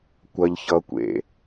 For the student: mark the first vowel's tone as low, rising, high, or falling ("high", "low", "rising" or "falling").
low